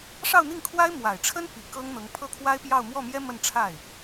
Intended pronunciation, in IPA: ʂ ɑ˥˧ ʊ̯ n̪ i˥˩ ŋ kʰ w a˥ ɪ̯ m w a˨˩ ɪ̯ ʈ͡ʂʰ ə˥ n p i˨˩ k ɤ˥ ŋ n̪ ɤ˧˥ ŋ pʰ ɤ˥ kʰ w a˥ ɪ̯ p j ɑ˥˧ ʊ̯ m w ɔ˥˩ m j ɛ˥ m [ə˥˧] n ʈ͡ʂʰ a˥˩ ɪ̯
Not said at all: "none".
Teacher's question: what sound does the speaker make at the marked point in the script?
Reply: ə˥˧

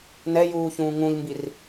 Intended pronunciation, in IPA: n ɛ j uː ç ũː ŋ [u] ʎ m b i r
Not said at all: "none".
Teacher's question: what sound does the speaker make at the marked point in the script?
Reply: ũ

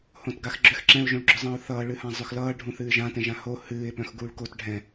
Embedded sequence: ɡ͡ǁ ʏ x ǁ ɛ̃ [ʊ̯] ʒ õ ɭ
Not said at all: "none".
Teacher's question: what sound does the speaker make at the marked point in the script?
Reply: ʊ̯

